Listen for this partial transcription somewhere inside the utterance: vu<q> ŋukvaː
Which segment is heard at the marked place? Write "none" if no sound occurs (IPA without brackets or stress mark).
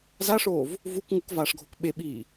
k